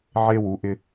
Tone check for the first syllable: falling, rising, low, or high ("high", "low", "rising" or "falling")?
high